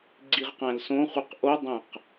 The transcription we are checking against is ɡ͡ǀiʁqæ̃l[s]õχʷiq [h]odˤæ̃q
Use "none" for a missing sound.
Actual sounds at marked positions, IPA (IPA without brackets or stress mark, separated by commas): s, ʔ